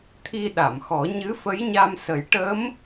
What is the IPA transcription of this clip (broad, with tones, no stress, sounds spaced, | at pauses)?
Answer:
t̪ʰ i˧ ɗ a˨˩˨ m x ɔ˨˩˦ ɲ ɨ˧˥ f ə˧˥ j ɲ a˧ m s ə˨˩˦ j ʈ ə˧˥ m